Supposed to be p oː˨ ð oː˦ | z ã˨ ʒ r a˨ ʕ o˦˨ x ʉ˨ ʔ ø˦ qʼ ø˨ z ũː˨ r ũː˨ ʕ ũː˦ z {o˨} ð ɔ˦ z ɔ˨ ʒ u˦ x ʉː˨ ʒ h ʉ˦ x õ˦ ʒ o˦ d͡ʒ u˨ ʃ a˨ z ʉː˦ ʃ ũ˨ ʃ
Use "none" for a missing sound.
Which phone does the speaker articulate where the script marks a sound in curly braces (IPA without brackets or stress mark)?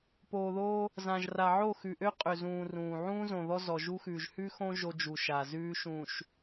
õ˨